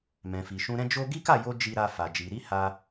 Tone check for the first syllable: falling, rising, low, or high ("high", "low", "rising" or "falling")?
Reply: low